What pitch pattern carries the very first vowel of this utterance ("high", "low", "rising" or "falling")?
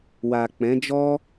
low